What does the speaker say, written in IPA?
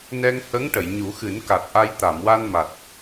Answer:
nɛ˧ŋhə˧˥ŋ ʈə˨˩˨jɲu˨˩˦xɨ˨˩˦nka˨˩t̚ ʔa˧j t̪a˨˩˨mwa˧n ma˨˩t̚

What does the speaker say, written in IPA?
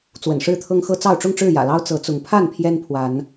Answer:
t͡swə̰˨˩nʂɻ̩˦t̪ʰɤ˦ŋ xɤ˦t͡sɑ˥˨ʊ̯ ʈ͡ʂʊ˥˨ŋʈ͡ʂɻ̩˥˨jä̰˨˩lɑ˦ʊ̯ t͡sɤ˨˦t͡sʊ˨˦ŋ pʰa˥˨n pʰjɛ˦npʰwa˨˦n

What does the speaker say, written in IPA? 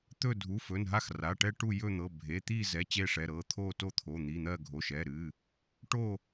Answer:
t̪ɵ˦˨ dʱu˩˧˩fɵ˩˧˩nɦa˦˨x ra˩˧˩ʈɛ˦˨ ʈu˦˨ jɵ˦˨n̪ɤ˩˧˩ bʱe˩˧˩t̪iː˦˨zɛ˩˧˩ t͡ɕe˦˨ʂɛ˩˧˩ɾɤː˩˧˩ t̪ʰoː˦˨to˦˨t̪ʰo˩˧˩ n̪i˩˧˩n̪ɜ˦˨ ɡʱo˩˧˩ʃɛ˩˧˩ɾɨː˩˧˩ | ʈo˦˨

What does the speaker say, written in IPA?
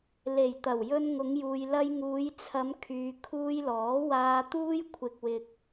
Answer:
le˨˩jt̪ɐ˨˩w jɵ˧nŋʊ˨˧ŋjuː˨j lɐ˧jŋuː˨˧jt͡sʰɐ˨˧m kʰyː˨ kʰuː˧jlɔː˨˥waː˧ t̪uː˥j kʷʰɪ˧k̚wɪ˧k̚

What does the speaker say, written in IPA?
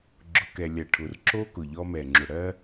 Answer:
ɡ͡ǁʊ˨kɛ˨ lʲɜ˨ʈʰʊ˨r ǁo˦ kʊ˨ʎɔ˦mɛ˨ ŋ͡ǁʊ˨ɽɜ˦

